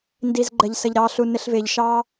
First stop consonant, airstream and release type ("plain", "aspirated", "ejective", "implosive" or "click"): plain